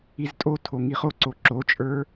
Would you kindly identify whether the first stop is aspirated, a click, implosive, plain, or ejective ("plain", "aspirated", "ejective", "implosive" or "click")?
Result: ejective